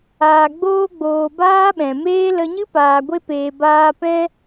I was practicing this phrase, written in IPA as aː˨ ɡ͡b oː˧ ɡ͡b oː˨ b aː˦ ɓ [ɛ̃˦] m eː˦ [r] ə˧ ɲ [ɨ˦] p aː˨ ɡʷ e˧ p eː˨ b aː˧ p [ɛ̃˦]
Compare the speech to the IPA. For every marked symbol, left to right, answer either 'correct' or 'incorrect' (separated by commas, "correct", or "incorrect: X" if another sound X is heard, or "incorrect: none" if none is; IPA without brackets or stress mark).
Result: incorrect: ɛ̃˨, incorrect: l, correct, incorrect: ɛ̃˧